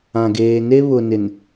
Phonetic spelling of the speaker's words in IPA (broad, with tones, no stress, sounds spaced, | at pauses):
ã˨ ɡ eː˨ n e˦ β ʊ˨ n ɪ˨ n